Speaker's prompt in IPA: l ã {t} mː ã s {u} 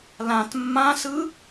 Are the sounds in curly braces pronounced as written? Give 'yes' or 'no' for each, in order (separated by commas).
yes, no